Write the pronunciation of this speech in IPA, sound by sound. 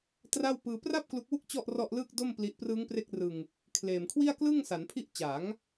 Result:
t r a˥˩ w p ɯː˧ p r a˥˩ p̚ k l u˦˥ k̚ w u˥˩ k̚ t͡ɕ ɔ˥˩ ʔ r ɔ˥˩ ʔ l ɯː˥˩ k̚ d o˥˩ m p l i˦˥ ʔ p r ɯː˦˥ ŋ p r e˦˥ k̚ r ɯ˧ ŋ | kʰ l eː˨˩ m kʰ w i˥˩ a̯ k l ɯ˥˩ ŋ s a˩˦ n pʰ i˥˩ ʔ t͡ɕ a˩˦ ŋ

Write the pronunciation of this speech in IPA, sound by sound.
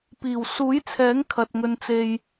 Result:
p iː˨˩ w s uː˨˥ j t͡sʰ ɛː˨˥ ŋ kʰ ɐ˨ t̚ ŋ ɵ˨ n t͡s e˨ j

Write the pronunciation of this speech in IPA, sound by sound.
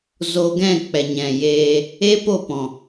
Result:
z o˦ ɡ ɛ̃˦˨ k͡p ɛ˨ ɲ ɛ̃˨ j eː˧ | e˦ p o˦˨ p ɔ̃˨

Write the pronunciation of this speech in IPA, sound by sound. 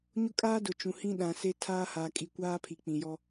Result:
ɲ ʊ˦ kʼ aː˦ d ʊ˨ t͡ʃ ũ˨ h ĩ˦ ɗ ã˨ s e˦ tʰ aː˦ h a˨ kʼ i˨ kʷ aː˦ pʰ i˨ k͡p ĩ˨ j ɔ˦

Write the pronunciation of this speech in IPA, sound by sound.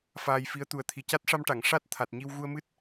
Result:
f aː˧ j f i˧˥ ə̯ t̪ u˨˩ ə̯ t̪ʰ i˨˩ c a˦˥ t̚ ʂ a˧ m ʈ a˨˩˨ ŋ ʂ a˦˥ t̚ t̪ʰ a˨˩ t̚ ɲ i˧ w ɣ u˧ ə̯ m ɨ˦˥ t̚

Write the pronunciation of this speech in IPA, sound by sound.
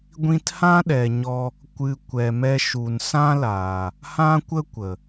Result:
ɡʷ ĩ˧ t h ã˦ ɗ ɛ˨ ɲ ɔ˧ | kʷ ɨ˨ kʷ ɛ˨ m ɛ˧ ʃ u˨ n s ã˦ l aː˨ | h ã˦ kʷ ə˦ kʷ ə˨

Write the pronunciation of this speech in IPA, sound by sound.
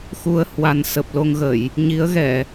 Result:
x u˧ ə̯ h w a˨˩ n s ə˨˩ p̚ l o˧ ŋ ɣ ə˧˩˨ j | ɲ i˨˦ ə̯ ɣ ɛ˧˩˨

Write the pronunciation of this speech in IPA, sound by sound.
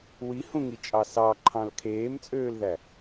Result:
w i h ũ ŋ i t͡ʃʼ ɑ s ɑ ǃʰ ɑ̃ l kʰ eː m t͡sʼ øː l ð æ

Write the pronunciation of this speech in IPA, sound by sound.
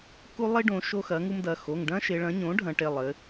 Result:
k u˦ lˠ i˦ ɖ õ˩˧ ʃ o˦ x ɐ˩˥ ŋ u˦ m d ɐ˩˧˩ x o˩˧˩ ŋ ɖ ɐ̃˦ ʃ e˩˧ ɭ ɐ̃˩˥ ɲ õ˩˥ ɖʱ ɐ̃˩˧ ʈ e˩˧˩ lˠ ɘ˩˧

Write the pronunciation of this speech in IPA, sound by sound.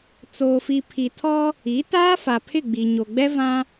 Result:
t͡s oː˨ f i˨ pʰ i˨ tʰ ɔ˦ | i˨˦ t aː˦ f a˨ pʰ ɪ˦˨ ɡ͡b i˨ ɲ o˨ ɡ͡b ɛ˦ v ã˦

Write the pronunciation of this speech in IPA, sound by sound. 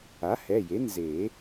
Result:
a˩˥ h ɛ˩˧˩ j e˩˥ n z e˨˩˦

